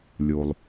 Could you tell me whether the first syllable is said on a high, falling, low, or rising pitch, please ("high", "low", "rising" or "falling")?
low